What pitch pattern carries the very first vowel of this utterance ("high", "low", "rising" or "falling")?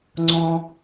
low